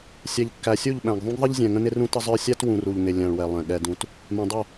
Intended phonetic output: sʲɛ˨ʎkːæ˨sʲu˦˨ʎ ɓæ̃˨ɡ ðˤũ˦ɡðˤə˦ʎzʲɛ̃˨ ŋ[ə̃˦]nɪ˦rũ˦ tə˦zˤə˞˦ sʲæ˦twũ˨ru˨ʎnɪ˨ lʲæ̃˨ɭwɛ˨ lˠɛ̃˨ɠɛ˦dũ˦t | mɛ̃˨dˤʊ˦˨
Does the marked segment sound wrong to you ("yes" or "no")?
no